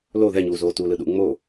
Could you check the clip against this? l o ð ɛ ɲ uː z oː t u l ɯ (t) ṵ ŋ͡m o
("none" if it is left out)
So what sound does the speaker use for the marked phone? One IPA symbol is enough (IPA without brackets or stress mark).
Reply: ɗ